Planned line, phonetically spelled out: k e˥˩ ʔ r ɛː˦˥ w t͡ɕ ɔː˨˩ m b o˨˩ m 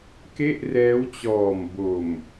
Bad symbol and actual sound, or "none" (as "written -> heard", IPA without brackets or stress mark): none